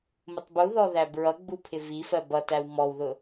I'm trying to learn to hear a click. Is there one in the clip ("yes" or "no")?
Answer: no